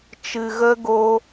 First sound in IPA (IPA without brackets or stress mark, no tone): t͡ʃ